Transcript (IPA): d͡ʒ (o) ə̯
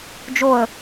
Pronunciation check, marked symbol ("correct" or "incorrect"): correct